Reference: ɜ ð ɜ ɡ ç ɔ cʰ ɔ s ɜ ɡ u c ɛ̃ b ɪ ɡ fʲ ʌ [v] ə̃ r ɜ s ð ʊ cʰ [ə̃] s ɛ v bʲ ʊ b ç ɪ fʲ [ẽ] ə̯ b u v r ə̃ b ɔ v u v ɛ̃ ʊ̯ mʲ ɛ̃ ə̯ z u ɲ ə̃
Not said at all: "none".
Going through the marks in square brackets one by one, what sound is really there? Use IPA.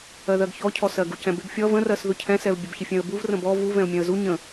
v, ɛ̃, ɛ̃

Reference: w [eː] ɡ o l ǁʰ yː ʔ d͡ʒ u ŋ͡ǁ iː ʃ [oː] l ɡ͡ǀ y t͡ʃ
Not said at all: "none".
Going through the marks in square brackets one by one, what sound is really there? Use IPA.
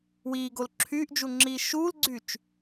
iː, uː

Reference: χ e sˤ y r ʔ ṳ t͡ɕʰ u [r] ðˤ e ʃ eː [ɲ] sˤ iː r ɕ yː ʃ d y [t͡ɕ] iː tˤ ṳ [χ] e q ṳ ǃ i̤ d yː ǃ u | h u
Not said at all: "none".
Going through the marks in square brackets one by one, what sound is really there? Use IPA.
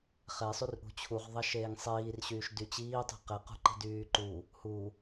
ʁ, ŋ, t͡ɕ, q

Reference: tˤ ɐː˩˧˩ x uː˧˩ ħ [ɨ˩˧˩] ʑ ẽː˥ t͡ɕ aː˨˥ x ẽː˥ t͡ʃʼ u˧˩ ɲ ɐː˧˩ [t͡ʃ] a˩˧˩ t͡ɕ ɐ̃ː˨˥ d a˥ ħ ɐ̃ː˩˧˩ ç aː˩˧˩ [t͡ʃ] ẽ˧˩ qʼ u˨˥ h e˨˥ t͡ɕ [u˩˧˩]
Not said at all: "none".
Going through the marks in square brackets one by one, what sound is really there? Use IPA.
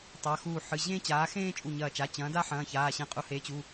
ɨ˩˧˩, t͡ʃ, ɕ, u˩˧˩

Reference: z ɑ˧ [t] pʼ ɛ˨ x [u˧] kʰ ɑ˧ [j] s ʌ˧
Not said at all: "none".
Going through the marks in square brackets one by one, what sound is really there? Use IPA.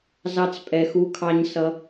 t͡s, u˧, ɲ

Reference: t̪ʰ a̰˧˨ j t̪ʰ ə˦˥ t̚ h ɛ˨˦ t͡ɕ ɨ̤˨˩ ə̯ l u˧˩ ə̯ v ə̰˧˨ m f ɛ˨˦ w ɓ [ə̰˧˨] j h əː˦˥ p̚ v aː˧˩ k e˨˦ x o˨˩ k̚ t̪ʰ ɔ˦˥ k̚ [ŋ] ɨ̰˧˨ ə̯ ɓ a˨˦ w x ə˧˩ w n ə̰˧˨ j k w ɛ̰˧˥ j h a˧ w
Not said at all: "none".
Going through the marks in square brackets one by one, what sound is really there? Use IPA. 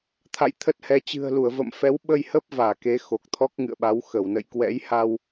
ə˧, ŋ

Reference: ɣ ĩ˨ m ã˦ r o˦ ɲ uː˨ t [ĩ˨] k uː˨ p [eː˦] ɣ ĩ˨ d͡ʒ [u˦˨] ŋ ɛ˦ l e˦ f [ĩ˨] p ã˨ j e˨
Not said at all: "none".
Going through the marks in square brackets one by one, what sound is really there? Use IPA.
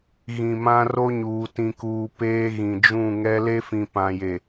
ĩ˨, eː˦, ũ˦˨, ĩ˨

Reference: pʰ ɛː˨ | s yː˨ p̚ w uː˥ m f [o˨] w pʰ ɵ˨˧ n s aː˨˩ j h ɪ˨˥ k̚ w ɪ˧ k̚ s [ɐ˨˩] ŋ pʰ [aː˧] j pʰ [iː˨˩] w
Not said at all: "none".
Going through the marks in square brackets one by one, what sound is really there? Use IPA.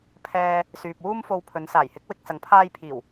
o˧, ɐ˨˧, aː˧, iː˨˩

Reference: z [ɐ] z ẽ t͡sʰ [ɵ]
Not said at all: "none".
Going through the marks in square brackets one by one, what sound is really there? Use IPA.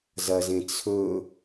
ɐ, ɵ

